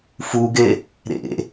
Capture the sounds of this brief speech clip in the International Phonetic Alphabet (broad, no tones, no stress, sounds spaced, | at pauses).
f u ɡ e | ɾ ḛ